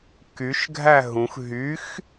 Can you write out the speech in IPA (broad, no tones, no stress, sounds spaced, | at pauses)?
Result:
k y ʃ ɡʱ æ ɦ ũ x ɦ y x